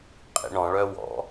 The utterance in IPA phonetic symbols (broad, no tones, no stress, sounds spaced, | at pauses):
qʼ ḭ ɳ ɔ̃ ɭ œ w ɔ̰